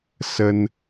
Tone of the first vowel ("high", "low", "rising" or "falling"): high